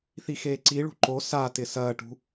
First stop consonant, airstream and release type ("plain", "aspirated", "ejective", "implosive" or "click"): click